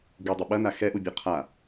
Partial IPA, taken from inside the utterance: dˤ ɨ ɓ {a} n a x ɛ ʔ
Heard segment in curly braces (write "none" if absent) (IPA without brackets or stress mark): ɐ